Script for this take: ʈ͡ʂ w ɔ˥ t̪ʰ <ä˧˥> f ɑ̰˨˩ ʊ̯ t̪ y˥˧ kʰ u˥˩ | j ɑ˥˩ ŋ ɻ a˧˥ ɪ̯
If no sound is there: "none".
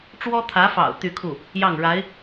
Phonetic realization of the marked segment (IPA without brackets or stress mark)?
ä˧˥